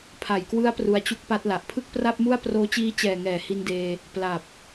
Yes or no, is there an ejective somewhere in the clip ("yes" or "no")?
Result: no